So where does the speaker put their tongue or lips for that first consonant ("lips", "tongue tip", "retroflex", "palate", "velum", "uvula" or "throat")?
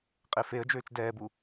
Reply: uvula